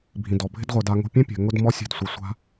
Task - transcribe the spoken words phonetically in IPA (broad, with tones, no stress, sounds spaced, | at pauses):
bʱ ĩ˨ d ɔ˨ bʱ ɪ˦ d ʁʷ e˧ d a˧ ŋ o̤˧ pʲ ẽ˦ pʲ ɛ̤˨ ŋ ʊ˦ d m ɔ˦ sʲ ɛ̤˦˨ d sʷ e˧ sʷ a̤˦